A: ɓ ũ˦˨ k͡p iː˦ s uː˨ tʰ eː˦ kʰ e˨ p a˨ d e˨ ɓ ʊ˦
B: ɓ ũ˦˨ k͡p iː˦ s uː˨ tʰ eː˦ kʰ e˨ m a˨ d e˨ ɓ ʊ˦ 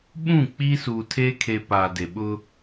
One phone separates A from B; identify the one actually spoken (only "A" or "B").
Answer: A